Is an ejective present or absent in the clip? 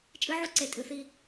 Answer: present